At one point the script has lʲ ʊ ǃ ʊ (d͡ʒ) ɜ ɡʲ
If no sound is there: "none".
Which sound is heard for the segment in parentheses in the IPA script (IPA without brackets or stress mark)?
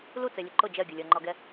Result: d͡ʒ